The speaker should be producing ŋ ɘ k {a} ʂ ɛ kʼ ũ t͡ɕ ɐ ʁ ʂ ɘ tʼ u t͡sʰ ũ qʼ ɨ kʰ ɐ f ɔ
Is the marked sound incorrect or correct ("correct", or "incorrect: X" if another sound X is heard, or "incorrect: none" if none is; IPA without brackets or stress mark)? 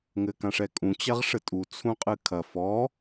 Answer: incorrect: ã